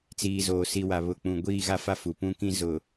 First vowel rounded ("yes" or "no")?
no